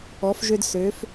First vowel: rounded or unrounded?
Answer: rounded